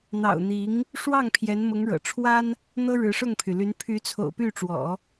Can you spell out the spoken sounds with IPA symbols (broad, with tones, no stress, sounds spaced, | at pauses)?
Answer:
n̪ ɑ̰˨˩ ʊ̯ n̪ i˧˥ ŋ | ʂ w ɑ˥˩ ŋ pʰ j ɛ˧˥ n m ʊ˧˥ ŋ ɻ ɤ̰˨˩ ʈ͡ʂʰ w a˥ n | n̪ ɤ˥ ɻ ɻ̩˧˥ ʂ ʊ˥˩ ŋ pʰ y˩ l y˧˥ n pʰ y˧˥ t͡sʰ o̰˨˩ ʊ̯ p y˥˩ ʈ͡ʂ w ɔ̰˨˩˦